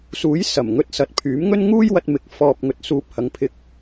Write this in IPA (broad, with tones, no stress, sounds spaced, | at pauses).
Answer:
s uː˨˥ j s ɐ˨˩ m ŋ ɵ˧ t̚ s ɐ˨ t̚ pʰ yː˨˥ m ŋ ɵ˥ n ŋ uː˥ j w ɐ˧ t̚ m ɪ˨˥ k̚ f ɔː˨ p̚ ŋ ɵ˨ t̚ s uː˨ p̚ h ɐ˨˧ ŋ pʰ ɪ˧ k̚